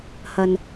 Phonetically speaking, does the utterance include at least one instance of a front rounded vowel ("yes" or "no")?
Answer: no